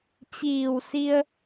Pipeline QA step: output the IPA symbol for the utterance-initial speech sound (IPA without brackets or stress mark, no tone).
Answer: t͡ɕ